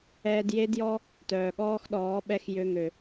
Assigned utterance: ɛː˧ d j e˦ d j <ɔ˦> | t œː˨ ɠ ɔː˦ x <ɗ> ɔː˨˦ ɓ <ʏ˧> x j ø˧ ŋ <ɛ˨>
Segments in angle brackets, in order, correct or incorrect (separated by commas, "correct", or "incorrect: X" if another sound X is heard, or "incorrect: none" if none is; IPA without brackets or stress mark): correct, correct, incorrect: ɛ˧, incorrect: ø˨